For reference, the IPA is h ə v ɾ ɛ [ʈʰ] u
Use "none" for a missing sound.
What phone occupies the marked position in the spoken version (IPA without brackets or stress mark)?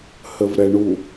ɳ